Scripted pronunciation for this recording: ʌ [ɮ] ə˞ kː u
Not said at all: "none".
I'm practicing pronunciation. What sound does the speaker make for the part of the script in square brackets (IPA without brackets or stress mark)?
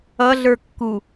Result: ɮ